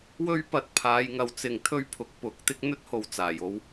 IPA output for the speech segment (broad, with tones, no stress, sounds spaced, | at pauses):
w ɵ˥ ɥ p ɐ˧ t̚ pʰ aː˨˧ j ŋ ɐ˨ w t͡s ɪ˨ ŋ t̪ʰ ɵ˥ ɥ pʰ ʊ˨˥ k̚ p ʊ˨˥ k̚ t̪ ɪ˥ k̚ n̪ ɵ˥ t̚ h o˨ w t͡s aː˨˩ j o˧ w